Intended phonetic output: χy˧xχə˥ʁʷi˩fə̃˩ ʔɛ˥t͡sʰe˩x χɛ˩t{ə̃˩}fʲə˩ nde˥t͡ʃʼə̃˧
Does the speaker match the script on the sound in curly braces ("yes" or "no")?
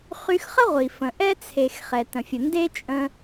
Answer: yes